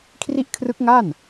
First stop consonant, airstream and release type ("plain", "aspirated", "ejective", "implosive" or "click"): aspirated